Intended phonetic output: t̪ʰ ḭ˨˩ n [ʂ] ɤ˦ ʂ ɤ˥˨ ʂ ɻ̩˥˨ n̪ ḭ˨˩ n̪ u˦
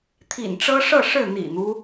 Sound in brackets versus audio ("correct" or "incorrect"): incorrect